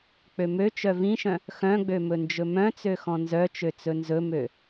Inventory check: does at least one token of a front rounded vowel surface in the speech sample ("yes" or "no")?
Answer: yes